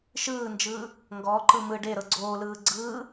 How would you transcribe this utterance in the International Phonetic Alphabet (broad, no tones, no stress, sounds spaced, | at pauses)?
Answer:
ʃ ɯː n d͡ʒ ɯː | ŋ ɡ ɔ ǃ ɯ m ɯ ɖ e ɾ ɤ ɡ͡ǀ oː l ɯː ɡ͡ǀ ɯː